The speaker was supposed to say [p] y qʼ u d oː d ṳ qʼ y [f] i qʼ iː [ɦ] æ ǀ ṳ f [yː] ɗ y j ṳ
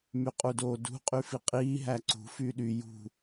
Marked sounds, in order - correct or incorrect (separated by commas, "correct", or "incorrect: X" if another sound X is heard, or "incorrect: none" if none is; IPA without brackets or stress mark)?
incorrect: m, correct, correct, correct